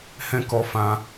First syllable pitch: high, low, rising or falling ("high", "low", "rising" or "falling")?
high